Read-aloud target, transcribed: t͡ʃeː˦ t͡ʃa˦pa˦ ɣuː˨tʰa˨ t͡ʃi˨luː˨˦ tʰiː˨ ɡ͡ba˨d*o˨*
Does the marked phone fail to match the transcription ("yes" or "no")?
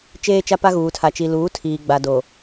no